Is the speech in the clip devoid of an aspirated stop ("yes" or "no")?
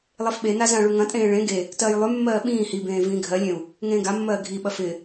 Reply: yes